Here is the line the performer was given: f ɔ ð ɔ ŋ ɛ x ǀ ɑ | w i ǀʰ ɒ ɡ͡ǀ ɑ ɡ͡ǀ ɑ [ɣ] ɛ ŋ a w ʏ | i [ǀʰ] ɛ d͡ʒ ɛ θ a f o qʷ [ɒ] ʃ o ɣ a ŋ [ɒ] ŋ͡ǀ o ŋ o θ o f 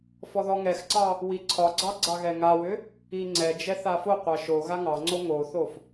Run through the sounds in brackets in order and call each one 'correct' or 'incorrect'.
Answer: correct, incorrect, incorrect, incorrect

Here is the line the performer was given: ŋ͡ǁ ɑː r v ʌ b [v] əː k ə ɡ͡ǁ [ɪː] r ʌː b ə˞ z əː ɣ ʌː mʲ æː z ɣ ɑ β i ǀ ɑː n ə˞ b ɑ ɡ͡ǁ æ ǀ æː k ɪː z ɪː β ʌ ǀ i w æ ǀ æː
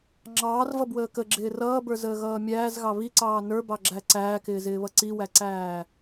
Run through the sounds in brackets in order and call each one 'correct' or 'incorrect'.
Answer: incorrect, correct

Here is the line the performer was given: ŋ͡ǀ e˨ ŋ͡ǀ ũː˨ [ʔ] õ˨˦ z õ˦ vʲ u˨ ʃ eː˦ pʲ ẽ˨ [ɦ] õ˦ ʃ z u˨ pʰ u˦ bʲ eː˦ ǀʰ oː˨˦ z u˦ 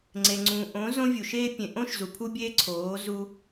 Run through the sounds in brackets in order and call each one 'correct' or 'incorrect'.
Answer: correct, incorrect

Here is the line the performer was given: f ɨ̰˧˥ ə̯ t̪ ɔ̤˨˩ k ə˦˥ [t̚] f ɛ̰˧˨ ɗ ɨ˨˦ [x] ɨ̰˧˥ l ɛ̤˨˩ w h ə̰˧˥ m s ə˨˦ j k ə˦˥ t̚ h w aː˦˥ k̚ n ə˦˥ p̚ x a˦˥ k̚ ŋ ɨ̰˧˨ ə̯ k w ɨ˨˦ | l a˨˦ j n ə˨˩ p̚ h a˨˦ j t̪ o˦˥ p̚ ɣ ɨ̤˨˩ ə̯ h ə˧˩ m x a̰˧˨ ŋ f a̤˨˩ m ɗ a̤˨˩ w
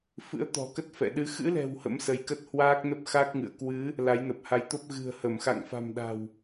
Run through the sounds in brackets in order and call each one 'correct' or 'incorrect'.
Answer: correct, correct

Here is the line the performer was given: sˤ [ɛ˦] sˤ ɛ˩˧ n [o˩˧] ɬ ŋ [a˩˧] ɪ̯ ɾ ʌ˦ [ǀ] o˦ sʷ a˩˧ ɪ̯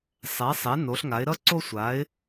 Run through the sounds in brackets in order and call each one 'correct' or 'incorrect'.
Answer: incorrect, correct, correct, correct

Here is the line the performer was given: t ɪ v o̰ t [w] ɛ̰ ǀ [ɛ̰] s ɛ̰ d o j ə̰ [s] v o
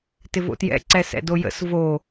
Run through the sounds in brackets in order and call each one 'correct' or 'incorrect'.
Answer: incorrect, incorrect, correct

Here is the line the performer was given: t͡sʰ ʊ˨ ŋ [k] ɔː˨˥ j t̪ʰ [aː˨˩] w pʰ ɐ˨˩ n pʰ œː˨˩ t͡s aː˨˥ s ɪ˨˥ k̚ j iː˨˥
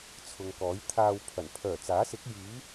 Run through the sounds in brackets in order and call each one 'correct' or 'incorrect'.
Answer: correct, incorrect

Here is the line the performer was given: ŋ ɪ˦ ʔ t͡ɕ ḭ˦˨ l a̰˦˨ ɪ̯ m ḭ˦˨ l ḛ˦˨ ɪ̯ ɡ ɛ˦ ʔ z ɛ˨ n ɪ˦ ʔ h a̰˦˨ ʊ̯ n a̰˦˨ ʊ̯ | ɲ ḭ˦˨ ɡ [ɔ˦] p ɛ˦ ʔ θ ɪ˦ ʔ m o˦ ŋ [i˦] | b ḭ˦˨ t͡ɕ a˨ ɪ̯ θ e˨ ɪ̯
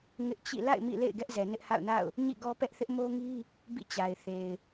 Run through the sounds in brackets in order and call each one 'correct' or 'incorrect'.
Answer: correct, correct

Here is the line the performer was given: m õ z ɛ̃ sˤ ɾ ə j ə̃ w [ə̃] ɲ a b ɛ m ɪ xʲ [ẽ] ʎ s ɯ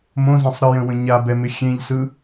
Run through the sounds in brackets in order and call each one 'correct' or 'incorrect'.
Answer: correct, correct

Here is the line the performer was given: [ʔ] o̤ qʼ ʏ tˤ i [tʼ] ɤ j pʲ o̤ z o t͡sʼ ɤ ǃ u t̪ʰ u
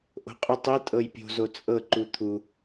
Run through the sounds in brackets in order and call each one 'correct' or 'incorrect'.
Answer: correct, correct

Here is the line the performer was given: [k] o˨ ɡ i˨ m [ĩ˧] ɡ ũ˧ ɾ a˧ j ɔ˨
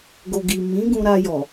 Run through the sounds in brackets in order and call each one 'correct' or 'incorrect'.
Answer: incorrect, incorrect

